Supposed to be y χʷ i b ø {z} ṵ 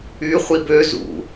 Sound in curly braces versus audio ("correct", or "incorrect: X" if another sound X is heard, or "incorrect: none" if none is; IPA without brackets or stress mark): correct